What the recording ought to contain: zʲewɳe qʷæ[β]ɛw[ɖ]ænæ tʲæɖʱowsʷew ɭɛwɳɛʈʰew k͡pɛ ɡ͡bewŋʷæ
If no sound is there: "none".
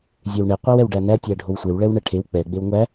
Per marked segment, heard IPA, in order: w, ɖ

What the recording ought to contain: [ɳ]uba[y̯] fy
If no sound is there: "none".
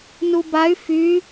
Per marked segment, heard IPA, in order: n, y̯

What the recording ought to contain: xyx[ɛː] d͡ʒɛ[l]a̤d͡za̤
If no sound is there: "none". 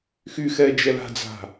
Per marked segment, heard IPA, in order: ɛː, l

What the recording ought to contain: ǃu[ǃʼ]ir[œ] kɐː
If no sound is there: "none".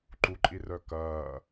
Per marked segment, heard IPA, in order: ǃʼ, œ

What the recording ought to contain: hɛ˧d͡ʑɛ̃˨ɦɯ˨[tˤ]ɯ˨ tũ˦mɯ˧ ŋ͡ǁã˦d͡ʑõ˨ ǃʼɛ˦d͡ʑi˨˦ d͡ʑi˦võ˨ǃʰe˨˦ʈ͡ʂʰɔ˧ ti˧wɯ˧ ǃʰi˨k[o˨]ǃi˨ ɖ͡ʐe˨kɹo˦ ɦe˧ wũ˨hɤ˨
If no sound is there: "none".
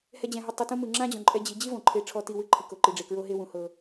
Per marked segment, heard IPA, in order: tˤ, o˨

